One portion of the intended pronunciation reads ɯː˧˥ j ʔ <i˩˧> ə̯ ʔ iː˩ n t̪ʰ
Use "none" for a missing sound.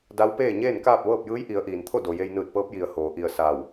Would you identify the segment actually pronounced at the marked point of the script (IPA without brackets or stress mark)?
i˩˧